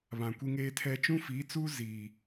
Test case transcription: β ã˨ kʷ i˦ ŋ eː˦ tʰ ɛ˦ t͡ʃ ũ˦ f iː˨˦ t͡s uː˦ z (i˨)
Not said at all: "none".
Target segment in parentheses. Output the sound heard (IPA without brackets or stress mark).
iː˨